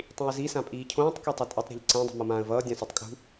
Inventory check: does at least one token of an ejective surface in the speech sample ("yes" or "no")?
yes